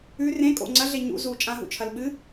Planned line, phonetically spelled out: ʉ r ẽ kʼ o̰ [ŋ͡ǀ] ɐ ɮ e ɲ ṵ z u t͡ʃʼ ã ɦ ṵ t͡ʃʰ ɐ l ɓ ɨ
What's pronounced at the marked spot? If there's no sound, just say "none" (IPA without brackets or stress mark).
ŋ͡ǀ